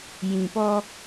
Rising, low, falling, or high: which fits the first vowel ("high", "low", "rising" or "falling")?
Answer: low